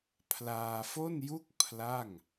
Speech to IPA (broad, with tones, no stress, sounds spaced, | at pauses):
pʰ l aː˧ f o˥˩ n j u˥˩ k̚ pʰ l a˥˩ ŋ